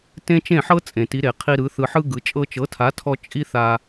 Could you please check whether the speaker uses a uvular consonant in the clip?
yes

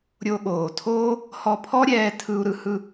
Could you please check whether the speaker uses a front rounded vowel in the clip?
no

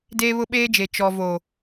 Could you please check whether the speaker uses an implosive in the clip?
yes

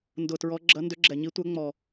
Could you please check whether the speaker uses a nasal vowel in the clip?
no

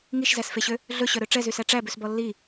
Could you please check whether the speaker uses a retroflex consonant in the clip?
yes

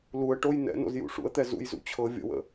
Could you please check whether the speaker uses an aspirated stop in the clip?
yes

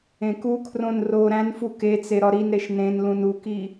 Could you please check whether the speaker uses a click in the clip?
no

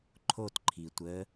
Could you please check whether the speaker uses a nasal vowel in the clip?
no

